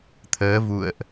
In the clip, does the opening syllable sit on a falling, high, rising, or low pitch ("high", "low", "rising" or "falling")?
rising